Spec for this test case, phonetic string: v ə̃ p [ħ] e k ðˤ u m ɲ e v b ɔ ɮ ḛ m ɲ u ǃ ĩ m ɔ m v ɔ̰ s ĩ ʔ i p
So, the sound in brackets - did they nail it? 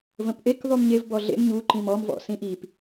no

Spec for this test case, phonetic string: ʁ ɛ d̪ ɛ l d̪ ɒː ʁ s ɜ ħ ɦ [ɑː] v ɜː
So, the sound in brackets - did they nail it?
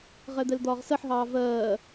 yes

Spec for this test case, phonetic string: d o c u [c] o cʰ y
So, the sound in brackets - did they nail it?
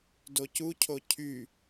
no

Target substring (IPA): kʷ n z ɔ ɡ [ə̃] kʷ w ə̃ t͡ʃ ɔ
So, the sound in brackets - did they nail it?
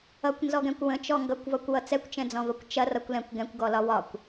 no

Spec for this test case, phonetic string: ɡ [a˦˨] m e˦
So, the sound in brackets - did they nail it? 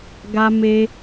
no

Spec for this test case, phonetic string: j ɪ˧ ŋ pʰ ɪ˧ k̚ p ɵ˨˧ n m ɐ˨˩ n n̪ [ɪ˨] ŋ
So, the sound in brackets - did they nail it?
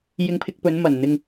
yes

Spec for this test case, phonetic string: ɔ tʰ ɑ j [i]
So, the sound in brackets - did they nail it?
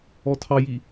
yes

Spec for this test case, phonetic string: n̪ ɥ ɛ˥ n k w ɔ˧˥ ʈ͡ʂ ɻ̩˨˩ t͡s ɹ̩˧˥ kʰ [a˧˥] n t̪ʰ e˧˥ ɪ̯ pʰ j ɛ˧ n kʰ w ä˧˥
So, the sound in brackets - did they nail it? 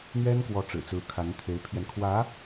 yes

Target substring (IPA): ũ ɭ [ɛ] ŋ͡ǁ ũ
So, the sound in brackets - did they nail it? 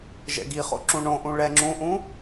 yes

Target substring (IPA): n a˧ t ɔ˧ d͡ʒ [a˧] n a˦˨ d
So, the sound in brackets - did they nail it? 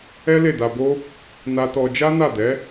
no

